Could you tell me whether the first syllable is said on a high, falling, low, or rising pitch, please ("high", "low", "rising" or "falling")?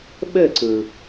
falling